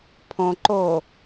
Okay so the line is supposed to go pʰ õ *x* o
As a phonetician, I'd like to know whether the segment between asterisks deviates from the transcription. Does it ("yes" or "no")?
yes